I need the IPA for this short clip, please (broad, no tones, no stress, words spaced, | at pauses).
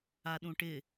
aɗũʈɪ